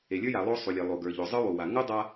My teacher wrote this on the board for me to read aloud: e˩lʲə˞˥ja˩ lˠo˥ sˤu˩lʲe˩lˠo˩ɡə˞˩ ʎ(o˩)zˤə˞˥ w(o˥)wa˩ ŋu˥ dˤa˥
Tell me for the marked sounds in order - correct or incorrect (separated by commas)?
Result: correct, incorrect